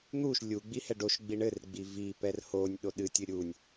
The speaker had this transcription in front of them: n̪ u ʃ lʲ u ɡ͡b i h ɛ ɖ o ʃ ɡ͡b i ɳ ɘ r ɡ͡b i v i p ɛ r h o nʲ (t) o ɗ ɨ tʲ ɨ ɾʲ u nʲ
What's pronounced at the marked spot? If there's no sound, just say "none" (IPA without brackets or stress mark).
ɗ